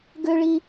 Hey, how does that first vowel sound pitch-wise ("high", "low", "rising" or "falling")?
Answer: high